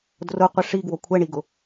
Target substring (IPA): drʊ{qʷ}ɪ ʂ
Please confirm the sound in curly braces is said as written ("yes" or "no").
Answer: yes